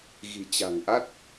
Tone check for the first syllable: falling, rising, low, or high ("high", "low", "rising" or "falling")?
low